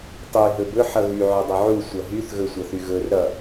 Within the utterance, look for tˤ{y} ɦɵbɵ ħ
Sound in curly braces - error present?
no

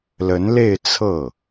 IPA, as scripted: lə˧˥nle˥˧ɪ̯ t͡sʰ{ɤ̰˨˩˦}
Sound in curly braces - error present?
yes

